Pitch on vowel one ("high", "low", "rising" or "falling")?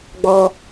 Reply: high